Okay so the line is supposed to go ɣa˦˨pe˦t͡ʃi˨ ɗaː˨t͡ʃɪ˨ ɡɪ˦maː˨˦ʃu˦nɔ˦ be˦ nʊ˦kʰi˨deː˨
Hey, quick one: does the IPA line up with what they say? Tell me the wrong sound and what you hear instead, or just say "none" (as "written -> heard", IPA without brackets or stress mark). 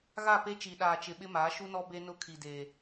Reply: ɡ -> ɓ